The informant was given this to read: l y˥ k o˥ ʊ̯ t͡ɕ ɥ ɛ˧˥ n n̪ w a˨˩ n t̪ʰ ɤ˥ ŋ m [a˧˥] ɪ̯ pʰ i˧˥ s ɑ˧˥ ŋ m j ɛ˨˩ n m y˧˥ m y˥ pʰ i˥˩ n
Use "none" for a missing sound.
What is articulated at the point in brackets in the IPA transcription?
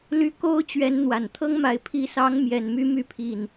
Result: a˧˥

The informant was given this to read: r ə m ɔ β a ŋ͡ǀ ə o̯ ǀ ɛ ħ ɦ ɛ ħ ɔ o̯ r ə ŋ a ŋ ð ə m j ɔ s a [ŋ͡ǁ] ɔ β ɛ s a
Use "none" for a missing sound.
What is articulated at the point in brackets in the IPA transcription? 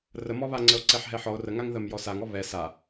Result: ŋ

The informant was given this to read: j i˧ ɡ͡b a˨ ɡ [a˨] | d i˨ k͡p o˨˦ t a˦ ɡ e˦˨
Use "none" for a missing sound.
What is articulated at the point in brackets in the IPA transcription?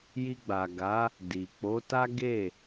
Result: a˨˦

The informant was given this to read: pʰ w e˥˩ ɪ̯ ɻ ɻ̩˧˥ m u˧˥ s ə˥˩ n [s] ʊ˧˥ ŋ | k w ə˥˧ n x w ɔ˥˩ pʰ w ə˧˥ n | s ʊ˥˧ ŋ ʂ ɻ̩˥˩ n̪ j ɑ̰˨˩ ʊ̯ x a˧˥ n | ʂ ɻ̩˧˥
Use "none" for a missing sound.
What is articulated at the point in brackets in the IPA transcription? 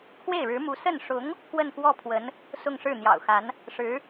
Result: ʂ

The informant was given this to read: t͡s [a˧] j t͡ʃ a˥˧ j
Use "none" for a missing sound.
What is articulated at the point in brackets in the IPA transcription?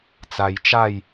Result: a˧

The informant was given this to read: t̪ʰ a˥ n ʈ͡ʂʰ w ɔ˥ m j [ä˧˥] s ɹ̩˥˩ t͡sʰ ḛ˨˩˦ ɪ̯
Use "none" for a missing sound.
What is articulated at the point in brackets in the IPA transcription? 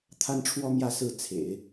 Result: ä˥˧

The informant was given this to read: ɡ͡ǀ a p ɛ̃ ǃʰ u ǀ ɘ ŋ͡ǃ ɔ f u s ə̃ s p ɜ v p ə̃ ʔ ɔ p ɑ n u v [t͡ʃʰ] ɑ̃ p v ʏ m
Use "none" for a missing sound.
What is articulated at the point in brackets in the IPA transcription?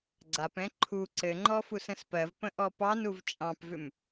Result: t͡ʃʼ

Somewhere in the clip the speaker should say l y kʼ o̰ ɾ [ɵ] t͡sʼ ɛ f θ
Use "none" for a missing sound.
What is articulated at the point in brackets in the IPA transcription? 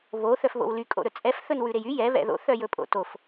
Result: ɵ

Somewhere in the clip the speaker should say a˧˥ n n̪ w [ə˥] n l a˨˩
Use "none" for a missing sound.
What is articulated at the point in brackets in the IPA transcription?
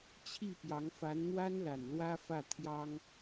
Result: a˥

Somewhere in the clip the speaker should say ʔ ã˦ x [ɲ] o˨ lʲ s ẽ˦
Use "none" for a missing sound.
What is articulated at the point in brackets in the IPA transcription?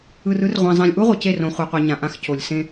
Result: c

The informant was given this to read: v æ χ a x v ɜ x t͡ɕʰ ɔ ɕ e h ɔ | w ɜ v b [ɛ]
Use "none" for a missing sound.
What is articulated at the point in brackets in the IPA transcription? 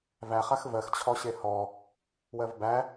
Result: æ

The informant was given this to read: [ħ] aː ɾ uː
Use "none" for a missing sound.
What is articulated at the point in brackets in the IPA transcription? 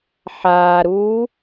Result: ħ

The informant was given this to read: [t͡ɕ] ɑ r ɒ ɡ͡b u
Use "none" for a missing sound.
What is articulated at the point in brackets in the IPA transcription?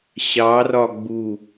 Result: ɕ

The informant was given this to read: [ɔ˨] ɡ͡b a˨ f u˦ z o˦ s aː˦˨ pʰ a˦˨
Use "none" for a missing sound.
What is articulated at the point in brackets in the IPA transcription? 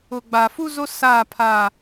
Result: ʊ˨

